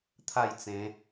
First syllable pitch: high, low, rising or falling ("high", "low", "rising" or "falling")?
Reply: falling